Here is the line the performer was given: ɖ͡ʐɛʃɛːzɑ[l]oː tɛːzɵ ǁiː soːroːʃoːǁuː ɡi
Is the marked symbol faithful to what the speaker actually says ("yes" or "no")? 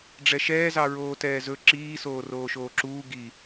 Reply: no